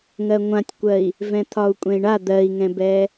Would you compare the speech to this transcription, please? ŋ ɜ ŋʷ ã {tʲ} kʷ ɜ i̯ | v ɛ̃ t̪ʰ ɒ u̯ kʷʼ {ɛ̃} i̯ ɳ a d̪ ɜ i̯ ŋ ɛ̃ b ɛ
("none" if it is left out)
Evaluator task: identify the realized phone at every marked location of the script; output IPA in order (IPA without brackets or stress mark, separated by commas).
tʲ, ɛ̃